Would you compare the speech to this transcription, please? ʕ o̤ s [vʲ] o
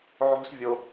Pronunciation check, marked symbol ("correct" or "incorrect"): correct